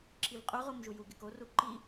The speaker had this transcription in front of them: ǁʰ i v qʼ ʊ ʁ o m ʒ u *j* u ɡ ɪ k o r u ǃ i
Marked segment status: correct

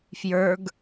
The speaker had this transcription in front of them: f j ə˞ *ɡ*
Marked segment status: correct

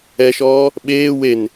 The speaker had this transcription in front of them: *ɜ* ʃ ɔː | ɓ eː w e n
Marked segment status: incorrect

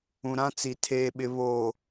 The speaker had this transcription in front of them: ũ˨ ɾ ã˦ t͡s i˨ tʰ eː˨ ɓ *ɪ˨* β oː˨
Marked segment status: correct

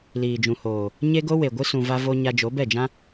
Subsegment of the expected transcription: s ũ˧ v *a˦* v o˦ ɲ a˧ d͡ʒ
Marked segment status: correct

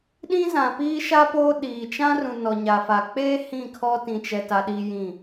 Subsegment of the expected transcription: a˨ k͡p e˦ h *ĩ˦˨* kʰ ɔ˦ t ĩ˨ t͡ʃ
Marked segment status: correct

